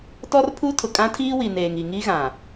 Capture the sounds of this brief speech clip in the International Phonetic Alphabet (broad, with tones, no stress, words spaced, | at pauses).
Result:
tɔ˦rpʰu˦tʰʊ˨ kʼã˦tʰiː˦wi˨ neː˨ŋi˨ ŋi˦ɣã˨